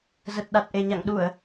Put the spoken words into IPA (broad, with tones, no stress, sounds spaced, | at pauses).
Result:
z ə˨˩ t̚ ɗ a˨˩ t̚ ʔ e˨˩ ɲ a̰˧˨ ŋ ɗ u˧˩˨ ə̯